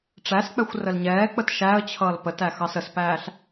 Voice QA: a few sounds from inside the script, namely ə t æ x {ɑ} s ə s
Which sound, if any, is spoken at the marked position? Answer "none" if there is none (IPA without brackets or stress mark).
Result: ɑ